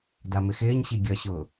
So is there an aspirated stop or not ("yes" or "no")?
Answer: no